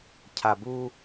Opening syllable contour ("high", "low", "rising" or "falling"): low